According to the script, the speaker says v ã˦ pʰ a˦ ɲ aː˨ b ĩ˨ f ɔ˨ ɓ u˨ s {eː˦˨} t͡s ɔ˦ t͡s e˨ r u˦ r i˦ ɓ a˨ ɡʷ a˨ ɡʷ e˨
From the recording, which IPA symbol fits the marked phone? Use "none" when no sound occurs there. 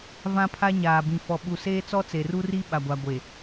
eː˦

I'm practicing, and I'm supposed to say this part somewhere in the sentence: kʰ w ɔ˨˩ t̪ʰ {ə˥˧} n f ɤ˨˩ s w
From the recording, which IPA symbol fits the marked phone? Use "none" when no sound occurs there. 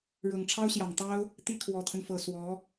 ə˦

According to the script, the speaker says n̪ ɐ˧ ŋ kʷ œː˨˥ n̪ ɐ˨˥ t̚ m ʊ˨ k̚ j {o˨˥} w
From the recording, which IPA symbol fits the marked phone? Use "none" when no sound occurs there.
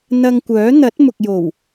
o˨˩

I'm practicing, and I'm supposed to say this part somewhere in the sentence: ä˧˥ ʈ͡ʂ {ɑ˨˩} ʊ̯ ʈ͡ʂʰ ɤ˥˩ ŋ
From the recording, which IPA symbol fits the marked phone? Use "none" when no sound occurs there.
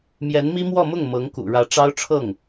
ɑ˥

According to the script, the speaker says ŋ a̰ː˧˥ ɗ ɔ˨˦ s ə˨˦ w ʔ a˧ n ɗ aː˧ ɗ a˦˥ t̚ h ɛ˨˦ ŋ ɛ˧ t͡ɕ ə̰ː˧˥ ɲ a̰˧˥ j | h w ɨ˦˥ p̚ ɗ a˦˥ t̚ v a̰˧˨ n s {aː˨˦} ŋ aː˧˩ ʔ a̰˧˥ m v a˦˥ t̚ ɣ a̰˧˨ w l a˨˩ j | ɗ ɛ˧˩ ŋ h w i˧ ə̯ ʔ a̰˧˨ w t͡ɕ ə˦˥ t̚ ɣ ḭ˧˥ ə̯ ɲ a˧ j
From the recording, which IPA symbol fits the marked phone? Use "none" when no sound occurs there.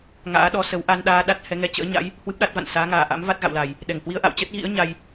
aː˨˦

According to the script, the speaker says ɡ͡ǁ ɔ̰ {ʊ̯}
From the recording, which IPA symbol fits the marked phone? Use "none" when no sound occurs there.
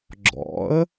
ə̯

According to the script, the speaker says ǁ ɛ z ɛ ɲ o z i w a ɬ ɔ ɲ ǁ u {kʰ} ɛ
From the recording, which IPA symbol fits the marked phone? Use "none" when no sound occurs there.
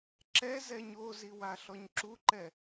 ǃ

